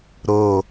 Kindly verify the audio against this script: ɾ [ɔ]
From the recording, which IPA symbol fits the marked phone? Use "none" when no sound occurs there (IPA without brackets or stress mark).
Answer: o